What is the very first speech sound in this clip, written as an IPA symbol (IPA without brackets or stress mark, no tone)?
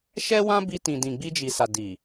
ʃ